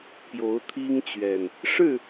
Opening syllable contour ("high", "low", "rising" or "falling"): rising